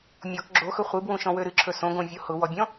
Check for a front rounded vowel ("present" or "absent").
present